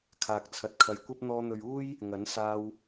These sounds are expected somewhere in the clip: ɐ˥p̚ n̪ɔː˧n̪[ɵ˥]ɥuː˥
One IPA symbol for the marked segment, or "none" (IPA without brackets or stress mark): ɵ˨